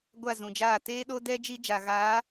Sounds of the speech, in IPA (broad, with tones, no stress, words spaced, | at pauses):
ɡʷa˦˨zũ˨d͡ʒaː˦˨ teː˦ɗo˦dɛ˦ d͡ʒi˦d͡ʒa˨ɣaː˨˦